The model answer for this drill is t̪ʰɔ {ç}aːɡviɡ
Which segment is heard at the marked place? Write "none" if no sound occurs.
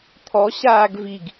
ɕ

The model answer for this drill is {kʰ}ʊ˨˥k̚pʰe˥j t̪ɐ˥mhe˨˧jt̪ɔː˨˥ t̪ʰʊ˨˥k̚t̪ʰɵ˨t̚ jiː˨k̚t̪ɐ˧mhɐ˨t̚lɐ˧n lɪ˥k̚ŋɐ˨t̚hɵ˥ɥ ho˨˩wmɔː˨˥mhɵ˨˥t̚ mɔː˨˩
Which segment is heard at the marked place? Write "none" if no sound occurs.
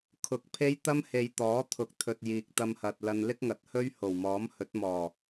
kʰ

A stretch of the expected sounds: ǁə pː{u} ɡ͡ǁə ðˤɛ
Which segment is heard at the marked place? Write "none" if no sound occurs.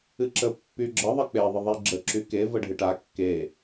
y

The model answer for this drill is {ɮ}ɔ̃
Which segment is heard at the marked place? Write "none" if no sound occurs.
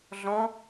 ɮ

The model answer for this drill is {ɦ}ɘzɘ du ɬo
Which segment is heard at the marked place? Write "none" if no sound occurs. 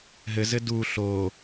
ɦ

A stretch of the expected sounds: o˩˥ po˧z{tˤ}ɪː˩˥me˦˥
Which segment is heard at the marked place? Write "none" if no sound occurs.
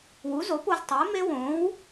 tˤ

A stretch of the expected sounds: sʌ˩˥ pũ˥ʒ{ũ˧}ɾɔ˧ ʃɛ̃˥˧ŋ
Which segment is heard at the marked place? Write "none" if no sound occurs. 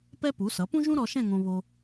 ũ˥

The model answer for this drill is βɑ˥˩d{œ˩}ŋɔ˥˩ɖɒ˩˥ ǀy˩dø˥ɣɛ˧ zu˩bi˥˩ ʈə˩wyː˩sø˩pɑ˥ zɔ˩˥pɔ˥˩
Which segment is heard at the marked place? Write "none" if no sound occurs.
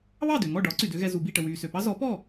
ø˩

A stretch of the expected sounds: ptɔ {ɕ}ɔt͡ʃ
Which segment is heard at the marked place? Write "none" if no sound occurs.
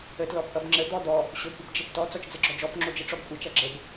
t͡s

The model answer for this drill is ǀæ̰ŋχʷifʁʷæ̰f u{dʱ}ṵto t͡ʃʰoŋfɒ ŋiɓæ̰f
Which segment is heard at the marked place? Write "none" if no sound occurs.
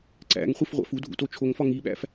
dʱ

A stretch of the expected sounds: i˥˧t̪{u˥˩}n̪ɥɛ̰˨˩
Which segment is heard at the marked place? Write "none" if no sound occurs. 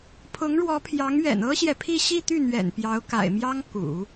y˥˩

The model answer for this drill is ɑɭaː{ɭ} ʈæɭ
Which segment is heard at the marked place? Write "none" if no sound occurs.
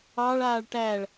ɭ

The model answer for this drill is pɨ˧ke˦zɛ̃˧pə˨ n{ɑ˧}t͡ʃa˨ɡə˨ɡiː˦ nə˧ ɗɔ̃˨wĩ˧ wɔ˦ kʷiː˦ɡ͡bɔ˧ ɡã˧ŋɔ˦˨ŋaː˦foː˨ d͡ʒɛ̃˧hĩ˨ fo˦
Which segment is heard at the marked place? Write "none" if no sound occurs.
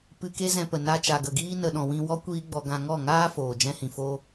a˧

